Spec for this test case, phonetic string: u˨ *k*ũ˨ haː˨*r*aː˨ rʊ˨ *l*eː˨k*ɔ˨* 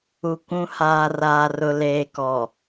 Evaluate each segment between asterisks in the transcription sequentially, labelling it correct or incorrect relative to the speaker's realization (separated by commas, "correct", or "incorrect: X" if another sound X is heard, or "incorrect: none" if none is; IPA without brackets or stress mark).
correct, correct, correct, correct